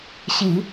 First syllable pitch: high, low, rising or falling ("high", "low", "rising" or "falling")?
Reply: low